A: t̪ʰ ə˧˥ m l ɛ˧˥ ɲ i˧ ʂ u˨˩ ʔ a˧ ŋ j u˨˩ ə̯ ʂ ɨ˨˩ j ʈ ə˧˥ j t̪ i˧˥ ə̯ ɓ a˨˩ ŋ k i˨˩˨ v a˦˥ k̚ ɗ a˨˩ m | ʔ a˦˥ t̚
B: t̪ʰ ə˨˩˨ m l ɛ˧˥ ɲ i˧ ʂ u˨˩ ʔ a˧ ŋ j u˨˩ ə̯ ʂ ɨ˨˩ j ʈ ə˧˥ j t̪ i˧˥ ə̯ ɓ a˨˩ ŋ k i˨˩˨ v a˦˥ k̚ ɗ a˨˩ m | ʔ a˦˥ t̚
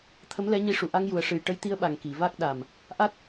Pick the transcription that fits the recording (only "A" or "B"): A